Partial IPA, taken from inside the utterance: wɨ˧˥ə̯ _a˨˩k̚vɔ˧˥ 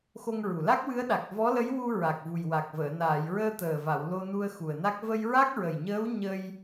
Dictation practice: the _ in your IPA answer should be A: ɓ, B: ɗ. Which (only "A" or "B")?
B